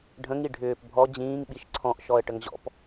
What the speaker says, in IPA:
ɖʱ ə̃ ŋ i ɖʱ ʏː p bʱ ɔ d͡ʑ ĩː ŋ ɓ i ʃ ǀʰ ɔ̃ ʔ ʃ ɔ ə̯ ʈ ə ŋ ʑ ɔ̰ p

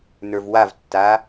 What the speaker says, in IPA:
n ə˞ v w a v tː a

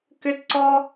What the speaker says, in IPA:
k ʏ˥ t ǀ ɔ˥

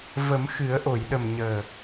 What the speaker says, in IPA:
v ə˨˩˦ m x ɨ˨˩˦ ə̯ ʔ o˨˩˨ j ɗ ə˨˩ m ɲ əː˨˩

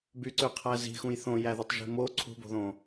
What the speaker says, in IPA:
b y ǀ ø qʰ æ z i̤ x ũ j θ õ j æ ð u tˤ ʒ i̤ m o ǀʰ ṳ b o̤ ð õ

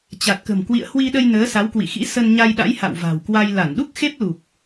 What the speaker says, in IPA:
t͡ɕ a˨˩ t̚ k ə̤˨˩ m k w ḭ˧˨ ə̯ h w i˧ ɗ ə˧ j n əː˨˦ s a˨˦ w k w ḭ˧˨ x ḭ˧˥ s ə˧ n ɲ a˧ j ɗ a̰˧˥ j h a̰˧˨ w v a̤˨˩ w k w a˧ j l a˧˩ n ɗ u˦˥ k̚ x e˦˥ p̚ l u˨˩ k̚

